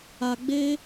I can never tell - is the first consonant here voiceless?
no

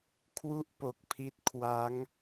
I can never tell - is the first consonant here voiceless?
yes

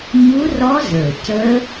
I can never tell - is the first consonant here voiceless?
no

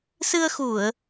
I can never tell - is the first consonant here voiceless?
yes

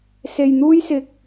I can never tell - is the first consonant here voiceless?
yes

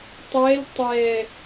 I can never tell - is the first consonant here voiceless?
yes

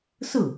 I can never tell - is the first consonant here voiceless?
yes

